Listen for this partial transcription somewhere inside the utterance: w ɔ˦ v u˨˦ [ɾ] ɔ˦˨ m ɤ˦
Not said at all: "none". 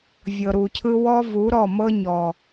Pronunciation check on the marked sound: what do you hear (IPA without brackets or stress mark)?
ɾ